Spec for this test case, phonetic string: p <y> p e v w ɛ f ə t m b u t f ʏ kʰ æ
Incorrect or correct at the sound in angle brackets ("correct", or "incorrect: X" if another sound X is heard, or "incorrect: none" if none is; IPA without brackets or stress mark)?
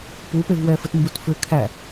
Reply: incorrect: u